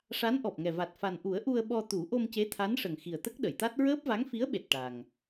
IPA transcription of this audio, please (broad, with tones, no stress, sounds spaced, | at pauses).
ʂ a˧˥ n ʔ ɔ˨˩ p̚ ŋ ɛ˨˩ v a˨˩ t̚ f a˨˩ n ʔ u˨˩˦ ə̯ ʔ u˧ ə̯ ɓ ɔ˧ t̪ u˨˩˦ ʔ o˧ m c e˧˥ t̪ʰ a˧˥ n ʂ ə˨˩ ŋ x i˨˩ ə̯ t̪ ə˦˥ k̚ ɗ ə˨˩˨ j t̪ a˦˥ t̚ ɹ əː˦˥ p̚ v a˧˥ ŋ f i˧˥ ə̯ ɓ e˨˩ t̚ ʈ a˨˩ ŋ